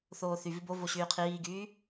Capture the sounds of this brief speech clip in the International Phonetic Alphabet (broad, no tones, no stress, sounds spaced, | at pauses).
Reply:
θ oː θ y v i b o v o ɕ yː qʰ iː ɡ yː